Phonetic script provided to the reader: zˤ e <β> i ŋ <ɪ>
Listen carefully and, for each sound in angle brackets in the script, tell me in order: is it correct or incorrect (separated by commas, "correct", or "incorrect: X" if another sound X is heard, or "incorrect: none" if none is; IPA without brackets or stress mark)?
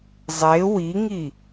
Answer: incorrect: w, incorrect: i